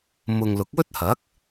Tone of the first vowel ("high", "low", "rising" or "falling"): low